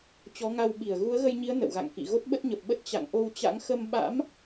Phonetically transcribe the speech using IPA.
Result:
t͡ɕɔ˨˦ŋa˧wɓi˧˩ə̯ ɣu˨˦ə̯ɣə˧jɲi˨˦ə̯ nə̰˧˨wɣa̰˧˨ŋkḭ˧˨ ɣo˦˥t̚ɓə˦˥t̚ɲə˨˩p̚ɓə˦˥t̚ t͡ɕa̰˧˨ŋʔo˧wt͡ɕa̰˧˥ŋ xə˧mɓa̰˧˥m

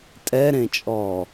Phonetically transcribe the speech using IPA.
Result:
tʼɛɾẽt͡ʃʼɔː

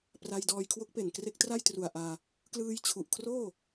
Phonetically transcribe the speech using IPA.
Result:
pra˧jdɔː˧jkʰwo˦˥k̚pe˨˩n kre˦˥k̚tra˥˩jtru˨˩a̯ʔaː˧ | klɯː˧jt͡ɕʰu˨˩ʔkʰroː˥˩

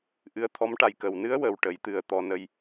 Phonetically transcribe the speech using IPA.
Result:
ʔɨ˧˥ə̯t̪ʰɔ˧˥mʈa˨˩j kə˨˩˨wnɨ˧˥ə̯ wə˨˩wʈə˨˩˦j t̪ɨ˨˩˦ə̯t̪ɔ˨˩˦ nə˧j

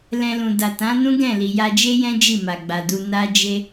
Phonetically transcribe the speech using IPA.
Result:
lɛ̃˧lũ˨ da˨tã˨˦nũ˦ɡɛ̃˦˨ li˨ja˧d͡ʒe˦jɛ̃˦ d͡ʒi˦˨ma˨ɡ͡ba˨du˧ na˦d͡ʒe˦

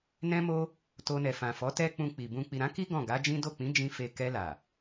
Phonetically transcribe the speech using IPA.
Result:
nɛ̃˦mo˦ | to˧nɛ˨fã˨fɔ˨˦ tɛ˦k͡pũ˧k͡pi˨bũ˧ k͡pi˨ɾã˨˦ki˦ ɡɔ̃˦˨ɡa˨˦d͡ʒĩ˦ do˦˨ k͡pĩ˨˦d͡ʒĩ˧ fe˧ kɛ˧la˨

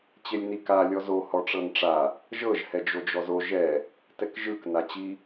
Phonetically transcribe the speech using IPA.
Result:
t͡ɕelʲnika lʲɔzo hɔʈ͡ʂɤnʈ͡ʂa | ʒɤʒ hɛd͡ʒod͡ʒɔzo ʒɛ | tɛkʒɯk nat͡ɕi

